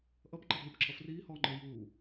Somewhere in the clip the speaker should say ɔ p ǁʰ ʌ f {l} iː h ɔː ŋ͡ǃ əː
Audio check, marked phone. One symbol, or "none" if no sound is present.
r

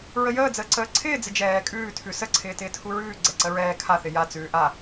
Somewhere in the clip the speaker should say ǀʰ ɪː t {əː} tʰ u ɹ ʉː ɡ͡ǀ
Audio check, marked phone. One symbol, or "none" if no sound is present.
ɪː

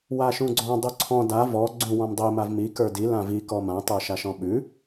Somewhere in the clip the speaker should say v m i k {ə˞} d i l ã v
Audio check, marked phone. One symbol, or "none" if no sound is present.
ə˞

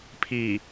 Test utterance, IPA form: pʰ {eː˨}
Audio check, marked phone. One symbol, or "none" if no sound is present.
iː˨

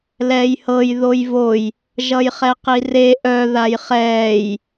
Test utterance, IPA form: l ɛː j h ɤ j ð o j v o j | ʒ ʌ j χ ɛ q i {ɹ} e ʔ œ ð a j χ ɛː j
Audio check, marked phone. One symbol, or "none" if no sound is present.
r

